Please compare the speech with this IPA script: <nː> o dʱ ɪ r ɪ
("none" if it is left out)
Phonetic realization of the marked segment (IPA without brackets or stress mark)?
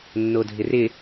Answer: nː